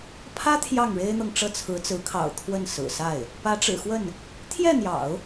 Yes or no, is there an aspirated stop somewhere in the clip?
yes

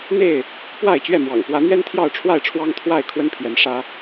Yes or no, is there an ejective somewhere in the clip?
no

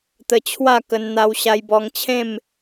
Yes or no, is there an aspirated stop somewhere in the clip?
yes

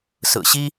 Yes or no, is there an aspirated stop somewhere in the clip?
no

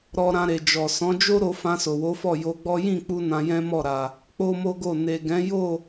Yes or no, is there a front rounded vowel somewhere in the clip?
no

